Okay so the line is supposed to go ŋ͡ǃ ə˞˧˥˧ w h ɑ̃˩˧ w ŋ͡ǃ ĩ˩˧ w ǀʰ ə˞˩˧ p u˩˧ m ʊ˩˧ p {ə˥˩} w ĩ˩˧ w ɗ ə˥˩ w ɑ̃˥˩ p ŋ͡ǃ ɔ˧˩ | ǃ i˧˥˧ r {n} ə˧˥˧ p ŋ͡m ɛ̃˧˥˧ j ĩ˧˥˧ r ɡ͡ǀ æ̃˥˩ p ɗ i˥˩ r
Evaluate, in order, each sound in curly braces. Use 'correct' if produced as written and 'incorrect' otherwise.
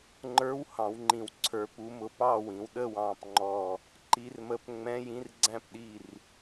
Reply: incorrect: ɑ˥˩, incorrect: m

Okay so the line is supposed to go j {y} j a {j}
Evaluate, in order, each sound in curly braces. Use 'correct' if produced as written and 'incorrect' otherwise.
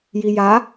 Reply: incorrect: i, incorrect: none

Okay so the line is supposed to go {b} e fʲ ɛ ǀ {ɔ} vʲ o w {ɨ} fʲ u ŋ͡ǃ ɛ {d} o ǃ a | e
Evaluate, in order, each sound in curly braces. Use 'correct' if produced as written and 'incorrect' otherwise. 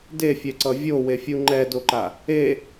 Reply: incorrect: d, incorrect: ʌ, incorrect: e, correct

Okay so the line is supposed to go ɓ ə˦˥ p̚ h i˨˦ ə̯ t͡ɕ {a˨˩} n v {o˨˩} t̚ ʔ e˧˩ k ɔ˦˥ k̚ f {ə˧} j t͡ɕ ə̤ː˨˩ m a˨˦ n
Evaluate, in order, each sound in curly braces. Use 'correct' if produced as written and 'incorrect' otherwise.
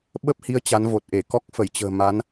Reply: incorrect: a˨˦, correct, incorrect: ə˧˩

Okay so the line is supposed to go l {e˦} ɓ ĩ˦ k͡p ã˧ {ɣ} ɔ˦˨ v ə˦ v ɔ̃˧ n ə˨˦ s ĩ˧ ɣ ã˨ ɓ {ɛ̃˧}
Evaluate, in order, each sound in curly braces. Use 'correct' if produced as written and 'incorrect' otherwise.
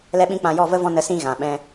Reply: incorrect: ɛ˦, incorrect: j, correct

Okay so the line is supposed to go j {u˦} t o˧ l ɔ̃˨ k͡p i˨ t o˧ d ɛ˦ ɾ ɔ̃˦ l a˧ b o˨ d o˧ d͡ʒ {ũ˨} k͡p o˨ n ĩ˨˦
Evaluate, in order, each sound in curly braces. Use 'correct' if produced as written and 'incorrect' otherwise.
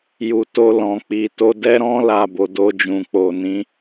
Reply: incorrect: u˨, correct

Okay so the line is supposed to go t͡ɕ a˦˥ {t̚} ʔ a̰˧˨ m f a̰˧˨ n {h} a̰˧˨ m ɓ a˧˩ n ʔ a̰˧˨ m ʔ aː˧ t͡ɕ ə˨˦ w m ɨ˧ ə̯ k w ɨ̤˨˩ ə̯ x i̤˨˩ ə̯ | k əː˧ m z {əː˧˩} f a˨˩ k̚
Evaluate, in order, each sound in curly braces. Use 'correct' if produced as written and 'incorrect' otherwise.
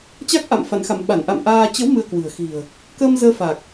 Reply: incorrect: k̚, incorrect: x, incorrect: əː˧

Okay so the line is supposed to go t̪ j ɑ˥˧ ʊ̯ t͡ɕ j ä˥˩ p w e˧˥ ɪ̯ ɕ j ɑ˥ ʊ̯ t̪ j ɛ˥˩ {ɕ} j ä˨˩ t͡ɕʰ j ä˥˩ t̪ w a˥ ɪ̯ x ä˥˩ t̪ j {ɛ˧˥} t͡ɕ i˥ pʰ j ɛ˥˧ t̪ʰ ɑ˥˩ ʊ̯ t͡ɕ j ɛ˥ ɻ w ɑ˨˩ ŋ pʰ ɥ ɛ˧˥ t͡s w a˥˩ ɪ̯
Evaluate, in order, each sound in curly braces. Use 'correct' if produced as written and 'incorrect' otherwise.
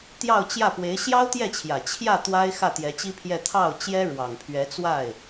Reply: incorrect: t͡ɕʰ, correct

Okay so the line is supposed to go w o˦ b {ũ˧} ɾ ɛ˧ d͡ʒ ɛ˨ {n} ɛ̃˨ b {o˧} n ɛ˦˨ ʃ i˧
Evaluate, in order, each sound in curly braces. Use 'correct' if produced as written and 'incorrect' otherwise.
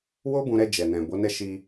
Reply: correct, correct, incorrect: o˨˦

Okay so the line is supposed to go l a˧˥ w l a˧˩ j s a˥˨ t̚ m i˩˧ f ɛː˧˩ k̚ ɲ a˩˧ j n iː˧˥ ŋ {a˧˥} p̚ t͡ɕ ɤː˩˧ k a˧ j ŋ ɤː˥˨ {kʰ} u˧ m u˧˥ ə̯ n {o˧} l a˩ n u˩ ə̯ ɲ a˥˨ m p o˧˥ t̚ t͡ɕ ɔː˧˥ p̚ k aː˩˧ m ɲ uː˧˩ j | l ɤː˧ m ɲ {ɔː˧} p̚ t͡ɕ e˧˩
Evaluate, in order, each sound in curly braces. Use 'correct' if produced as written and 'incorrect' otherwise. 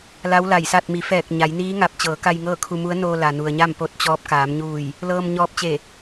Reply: incorrect: a˧, correct, correct, correct

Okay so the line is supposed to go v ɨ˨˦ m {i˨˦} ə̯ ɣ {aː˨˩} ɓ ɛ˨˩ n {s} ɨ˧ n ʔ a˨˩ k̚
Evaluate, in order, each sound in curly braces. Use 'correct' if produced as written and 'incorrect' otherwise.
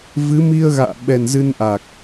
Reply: incorrect: i˧, incorrect: a̰ː˧˨, incorrect: z

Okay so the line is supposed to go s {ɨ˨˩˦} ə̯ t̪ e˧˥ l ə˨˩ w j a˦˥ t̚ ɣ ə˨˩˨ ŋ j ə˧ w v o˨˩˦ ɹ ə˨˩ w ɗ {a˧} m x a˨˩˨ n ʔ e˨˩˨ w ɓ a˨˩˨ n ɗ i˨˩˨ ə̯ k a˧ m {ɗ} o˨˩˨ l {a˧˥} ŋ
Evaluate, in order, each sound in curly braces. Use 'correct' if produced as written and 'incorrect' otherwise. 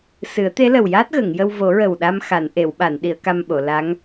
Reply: correct, correct, incorrect: ɓ, correct

